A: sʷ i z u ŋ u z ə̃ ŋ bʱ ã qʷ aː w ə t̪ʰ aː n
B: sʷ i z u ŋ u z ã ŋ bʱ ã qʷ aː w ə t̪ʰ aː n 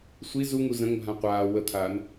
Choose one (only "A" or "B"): A